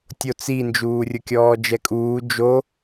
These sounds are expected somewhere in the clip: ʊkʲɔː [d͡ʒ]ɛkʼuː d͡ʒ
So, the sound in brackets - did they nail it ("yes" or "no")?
yes